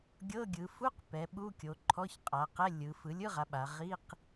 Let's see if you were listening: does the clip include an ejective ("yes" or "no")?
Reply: yes